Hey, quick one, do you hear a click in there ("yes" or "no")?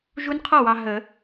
no